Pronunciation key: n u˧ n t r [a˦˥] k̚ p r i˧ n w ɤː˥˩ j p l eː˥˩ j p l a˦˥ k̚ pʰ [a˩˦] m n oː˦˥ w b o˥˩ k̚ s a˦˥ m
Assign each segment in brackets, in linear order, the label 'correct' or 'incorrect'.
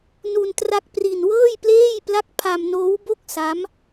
correct, incorrect

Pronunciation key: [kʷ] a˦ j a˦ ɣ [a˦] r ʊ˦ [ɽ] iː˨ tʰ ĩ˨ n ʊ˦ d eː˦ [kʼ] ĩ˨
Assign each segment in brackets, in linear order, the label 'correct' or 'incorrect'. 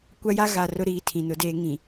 correct, incorrect, incorrect, incorrect

